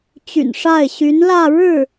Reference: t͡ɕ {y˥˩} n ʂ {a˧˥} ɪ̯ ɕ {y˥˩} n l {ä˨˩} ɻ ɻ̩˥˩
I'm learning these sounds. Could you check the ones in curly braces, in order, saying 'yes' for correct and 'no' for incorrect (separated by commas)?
no, no, no, no